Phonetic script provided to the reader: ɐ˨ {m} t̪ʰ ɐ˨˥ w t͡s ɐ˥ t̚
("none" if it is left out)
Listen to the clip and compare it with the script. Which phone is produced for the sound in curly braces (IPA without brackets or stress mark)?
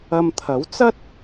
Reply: m